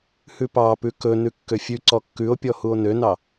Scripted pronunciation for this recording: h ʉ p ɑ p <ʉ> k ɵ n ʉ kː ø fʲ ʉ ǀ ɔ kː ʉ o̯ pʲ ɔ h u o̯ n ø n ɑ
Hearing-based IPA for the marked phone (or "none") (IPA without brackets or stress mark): ʉ